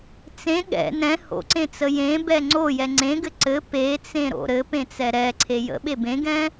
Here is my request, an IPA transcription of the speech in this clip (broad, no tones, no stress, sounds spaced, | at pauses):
t͡s ẽ ɠ ɛ̰ n ɛ̃ h o̰ ǀ ẽ t͡s ə j ẽ b ɛ ŋ͡ǀ o j ɛ ŋ͡ǀ ẽ ɡ ɘ ǀ ɘ p e t͡s ẽ ɾ o̰ ɾ ɘ p ẽ t͡s ɛ ɾ ɛ ǀʰ e j ə̰ ɓ e b ẽ ɡ ɛ̃